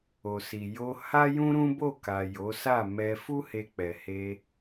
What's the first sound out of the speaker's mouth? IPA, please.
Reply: o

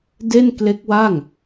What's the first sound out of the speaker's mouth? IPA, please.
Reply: d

